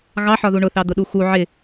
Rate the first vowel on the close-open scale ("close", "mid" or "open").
open